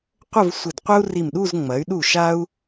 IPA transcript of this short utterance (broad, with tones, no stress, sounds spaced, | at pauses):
qʷ ə˥˧ v sʷ ɪ˧˩ d qʷ ə˥ u̯ r i˧˩ m ɗ u˥˧ z ŋ͡m ɐ˩˧ y̯ ɗ u˧˩ ʃ a˥ u̯